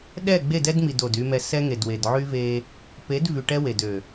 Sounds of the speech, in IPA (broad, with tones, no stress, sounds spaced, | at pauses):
ɗ ɛ˦˨ ɡ͡b e˦˨ d ɛ˦ d m i˨ d o˨ d y˦ m ɛ˦ s ɛ˦ ŋ e˨ d w e˨ d ʕ y˦ v e˦ | p e˨˦ d v y˨ ʈ ɛ˦ w e˨ d ø˨